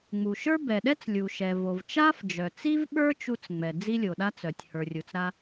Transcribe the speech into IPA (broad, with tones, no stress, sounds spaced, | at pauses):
ŋ͡m u˩ ʃ ə˞˥ b ɛ˩ ɗ ɛ˥ t͡s lʲ u˩ ʃ ɛ˩ v o˩ v t͡ʃ a˥ f d͡ʒ œ˩ t͡s i˥ v ɓ ə˞˥ t͡ʃ u˥ t͡s ŋ͡m ɛ˩ d͡z i˥ lʲ o˩ ɗ a˥ t͡s œ˩ tʲ h ə˞˩ rʲ u˩ t͡s ɾ a˥